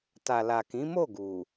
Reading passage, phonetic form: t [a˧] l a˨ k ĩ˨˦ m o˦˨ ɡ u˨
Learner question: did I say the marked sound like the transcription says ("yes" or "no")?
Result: no